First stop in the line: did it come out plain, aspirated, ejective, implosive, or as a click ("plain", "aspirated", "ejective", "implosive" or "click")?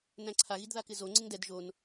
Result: click